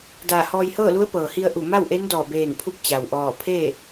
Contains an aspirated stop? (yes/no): yes